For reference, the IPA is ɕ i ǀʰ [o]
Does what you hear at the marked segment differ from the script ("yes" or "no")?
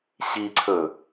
yes